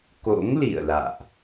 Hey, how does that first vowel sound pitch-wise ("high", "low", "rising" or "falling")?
rising